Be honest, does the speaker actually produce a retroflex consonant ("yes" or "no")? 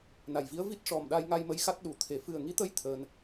yes